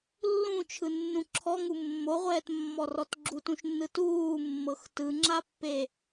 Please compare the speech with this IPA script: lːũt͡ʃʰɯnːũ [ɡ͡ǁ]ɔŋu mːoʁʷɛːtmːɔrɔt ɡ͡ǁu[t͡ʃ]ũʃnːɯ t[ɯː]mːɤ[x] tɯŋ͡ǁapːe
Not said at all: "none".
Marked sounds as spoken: ǁʰ, t, uː, x

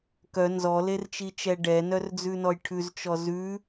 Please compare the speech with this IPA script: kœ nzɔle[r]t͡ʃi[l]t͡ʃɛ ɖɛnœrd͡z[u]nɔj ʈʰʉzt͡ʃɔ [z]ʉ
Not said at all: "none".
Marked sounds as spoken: r, none, ʉ, z

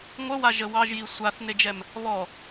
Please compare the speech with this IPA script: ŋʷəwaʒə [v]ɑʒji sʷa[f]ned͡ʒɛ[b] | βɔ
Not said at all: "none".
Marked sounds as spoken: w, θ, m

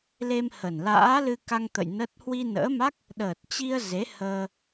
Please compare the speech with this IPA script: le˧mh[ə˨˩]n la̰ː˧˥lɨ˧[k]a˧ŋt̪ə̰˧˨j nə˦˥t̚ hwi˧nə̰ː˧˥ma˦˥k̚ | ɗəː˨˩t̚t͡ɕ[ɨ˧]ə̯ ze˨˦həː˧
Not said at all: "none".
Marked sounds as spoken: ə˨˩, k, i˧

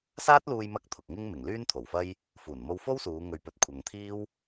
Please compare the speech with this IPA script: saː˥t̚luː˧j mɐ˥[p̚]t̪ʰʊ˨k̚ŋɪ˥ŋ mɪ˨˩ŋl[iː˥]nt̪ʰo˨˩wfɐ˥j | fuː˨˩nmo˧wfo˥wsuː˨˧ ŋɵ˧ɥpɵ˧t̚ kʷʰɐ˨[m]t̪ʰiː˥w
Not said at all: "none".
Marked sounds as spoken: k̚, yː˥, ŋ

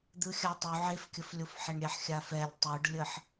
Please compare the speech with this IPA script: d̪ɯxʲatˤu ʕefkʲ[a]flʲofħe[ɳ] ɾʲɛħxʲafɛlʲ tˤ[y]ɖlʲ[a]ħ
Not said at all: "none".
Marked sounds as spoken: ə, ɳ, y, ə

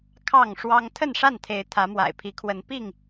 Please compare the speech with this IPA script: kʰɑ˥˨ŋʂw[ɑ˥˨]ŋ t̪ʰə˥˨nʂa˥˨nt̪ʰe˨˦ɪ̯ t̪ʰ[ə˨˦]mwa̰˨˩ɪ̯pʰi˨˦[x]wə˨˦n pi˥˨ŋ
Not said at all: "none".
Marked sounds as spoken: ɑ˦, ä˨˦, kʰ

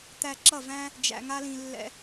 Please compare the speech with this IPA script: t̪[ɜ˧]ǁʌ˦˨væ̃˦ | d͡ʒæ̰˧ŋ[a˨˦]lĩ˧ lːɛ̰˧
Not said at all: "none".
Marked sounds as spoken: æ˧, a˦

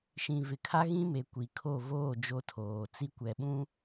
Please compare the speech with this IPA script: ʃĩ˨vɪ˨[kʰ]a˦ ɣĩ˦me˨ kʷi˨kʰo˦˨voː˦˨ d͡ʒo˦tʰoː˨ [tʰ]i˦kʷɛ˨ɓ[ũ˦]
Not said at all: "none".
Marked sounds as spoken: kʰ, t͡s, ũ˦

